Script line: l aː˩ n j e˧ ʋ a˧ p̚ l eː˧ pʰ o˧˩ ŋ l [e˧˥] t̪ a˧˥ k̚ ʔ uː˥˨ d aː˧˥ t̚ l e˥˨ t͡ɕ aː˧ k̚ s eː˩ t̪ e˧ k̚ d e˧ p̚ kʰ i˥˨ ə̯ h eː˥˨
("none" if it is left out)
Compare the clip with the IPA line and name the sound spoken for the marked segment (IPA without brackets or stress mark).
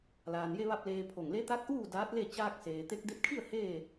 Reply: e˧˥